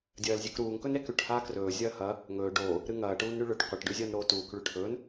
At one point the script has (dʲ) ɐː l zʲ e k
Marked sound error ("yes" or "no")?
no